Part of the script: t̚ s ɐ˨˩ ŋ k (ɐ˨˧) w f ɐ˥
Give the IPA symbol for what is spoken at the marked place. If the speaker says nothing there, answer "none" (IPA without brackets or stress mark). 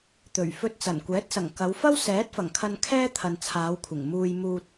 ɐ˨˧